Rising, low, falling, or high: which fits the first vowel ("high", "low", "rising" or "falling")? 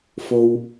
high